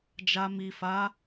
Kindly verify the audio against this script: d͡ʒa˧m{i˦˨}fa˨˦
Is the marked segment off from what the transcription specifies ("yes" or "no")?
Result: yes